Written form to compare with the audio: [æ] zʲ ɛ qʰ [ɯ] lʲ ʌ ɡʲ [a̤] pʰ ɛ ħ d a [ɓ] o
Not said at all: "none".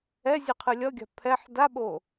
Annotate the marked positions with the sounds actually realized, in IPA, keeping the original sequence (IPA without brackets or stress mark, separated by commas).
ɛ, ɯ, a̤, ɓ